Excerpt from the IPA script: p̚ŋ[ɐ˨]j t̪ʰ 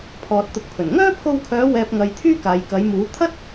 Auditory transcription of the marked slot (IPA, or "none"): ɐ˨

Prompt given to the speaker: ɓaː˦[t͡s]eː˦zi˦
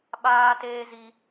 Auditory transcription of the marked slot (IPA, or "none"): t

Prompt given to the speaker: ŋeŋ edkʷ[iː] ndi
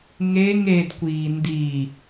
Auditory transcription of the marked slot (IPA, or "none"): iː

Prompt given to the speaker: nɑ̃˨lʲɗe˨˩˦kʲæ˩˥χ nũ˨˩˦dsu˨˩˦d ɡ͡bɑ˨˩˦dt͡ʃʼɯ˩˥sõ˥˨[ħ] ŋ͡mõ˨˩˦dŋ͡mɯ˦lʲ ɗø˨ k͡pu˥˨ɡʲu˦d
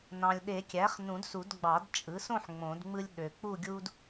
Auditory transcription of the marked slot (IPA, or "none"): ħ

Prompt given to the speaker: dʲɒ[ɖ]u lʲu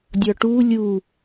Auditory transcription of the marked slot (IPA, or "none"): ʈ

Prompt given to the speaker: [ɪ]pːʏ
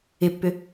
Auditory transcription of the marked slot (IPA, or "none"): ɪ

